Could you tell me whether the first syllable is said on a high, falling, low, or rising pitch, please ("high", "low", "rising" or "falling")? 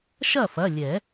falling